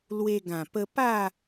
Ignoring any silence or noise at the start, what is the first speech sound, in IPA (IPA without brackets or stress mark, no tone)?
l